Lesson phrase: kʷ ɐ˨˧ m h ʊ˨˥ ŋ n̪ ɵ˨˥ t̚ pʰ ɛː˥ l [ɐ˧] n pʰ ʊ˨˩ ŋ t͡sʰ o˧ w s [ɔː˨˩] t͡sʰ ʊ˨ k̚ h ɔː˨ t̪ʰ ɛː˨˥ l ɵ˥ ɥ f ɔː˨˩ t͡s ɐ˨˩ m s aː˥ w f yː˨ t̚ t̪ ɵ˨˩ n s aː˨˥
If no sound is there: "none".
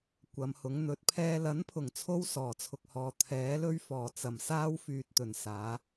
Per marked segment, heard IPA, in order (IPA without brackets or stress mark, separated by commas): ɐ˨˥, ɔː˨˩